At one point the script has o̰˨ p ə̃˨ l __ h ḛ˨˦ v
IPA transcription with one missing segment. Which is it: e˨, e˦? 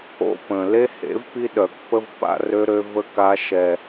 e˦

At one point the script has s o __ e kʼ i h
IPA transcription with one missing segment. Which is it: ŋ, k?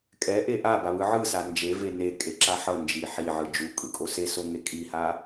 ŋ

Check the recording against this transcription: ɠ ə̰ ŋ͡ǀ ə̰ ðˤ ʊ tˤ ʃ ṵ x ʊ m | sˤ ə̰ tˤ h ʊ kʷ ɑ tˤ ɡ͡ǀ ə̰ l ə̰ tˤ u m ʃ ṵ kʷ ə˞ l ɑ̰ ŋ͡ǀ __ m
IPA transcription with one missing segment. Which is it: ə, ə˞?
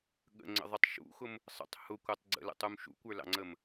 ə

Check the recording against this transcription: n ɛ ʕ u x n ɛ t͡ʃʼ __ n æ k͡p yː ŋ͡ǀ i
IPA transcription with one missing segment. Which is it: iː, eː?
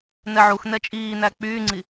iː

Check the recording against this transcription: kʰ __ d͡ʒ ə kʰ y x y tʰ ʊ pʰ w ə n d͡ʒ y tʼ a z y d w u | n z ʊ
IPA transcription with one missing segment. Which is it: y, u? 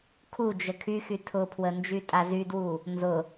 u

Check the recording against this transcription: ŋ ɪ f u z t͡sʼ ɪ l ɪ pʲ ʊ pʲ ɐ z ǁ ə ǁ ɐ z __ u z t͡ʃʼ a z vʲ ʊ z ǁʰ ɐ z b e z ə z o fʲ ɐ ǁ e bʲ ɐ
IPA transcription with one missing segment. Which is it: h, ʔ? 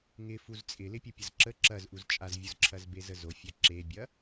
ʔ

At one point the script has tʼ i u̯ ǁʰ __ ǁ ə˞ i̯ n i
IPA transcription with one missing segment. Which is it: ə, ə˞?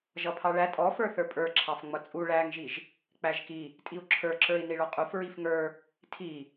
ə˞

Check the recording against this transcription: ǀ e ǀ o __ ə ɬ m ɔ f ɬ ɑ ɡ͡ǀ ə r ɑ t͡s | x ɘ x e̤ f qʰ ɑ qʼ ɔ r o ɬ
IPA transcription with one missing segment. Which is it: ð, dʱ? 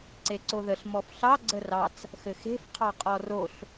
ð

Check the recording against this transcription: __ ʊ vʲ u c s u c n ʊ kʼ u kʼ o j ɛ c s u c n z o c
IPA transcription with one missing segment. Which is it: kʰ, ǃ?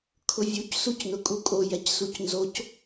kʰ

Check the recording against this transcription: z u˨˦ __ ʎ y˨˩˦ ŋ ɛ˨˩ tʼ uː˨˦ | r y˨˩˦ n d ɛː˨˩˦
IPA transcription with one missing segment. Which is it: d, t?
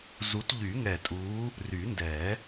t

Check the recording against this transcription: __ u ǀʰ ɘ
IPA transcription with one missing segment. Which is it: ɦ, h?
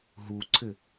ɦ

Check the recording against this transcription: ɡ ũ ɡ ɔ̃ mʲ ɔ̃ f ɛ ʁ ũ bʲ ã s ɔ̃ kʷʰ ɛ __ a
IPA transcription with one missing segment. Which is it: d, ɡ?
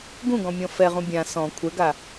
ɡ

